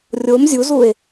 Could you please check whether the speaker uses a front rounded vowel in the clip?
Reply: no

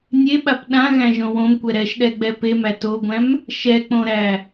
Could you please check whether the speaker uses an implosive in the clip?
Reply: yes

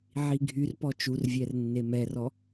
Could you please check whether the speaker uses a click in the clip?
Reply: no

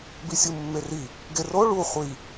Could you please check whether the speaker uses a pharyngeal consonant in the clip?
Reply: no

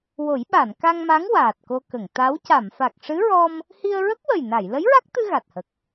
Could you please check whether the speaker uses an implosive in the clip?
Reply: yes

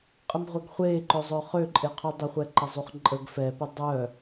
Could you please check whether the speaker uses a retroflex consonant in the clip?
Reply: no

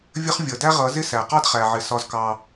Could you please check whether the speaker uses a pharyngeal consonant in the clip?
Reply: yes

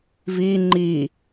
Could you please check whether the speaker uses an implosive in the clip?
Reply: no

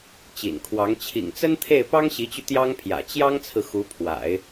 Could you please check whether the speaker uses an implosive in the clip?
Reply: no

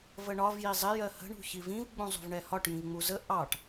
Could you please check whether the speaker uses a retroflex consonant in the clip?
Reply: yes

